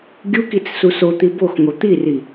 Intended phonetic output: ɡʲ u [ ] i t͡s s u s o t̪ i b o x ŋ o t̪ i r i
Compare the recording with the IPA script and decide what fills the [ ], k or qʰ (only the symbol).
k